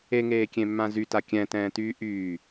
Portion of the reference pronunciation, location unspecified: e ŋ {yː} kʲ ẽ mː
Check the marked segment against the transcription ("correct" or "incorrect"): incorrect